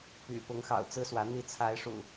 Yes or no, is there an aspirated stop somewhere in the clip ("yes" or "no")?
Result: yes